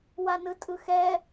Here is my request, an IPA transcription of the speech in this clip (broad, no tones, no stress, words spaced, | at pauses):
wanɯtʼɯxɛ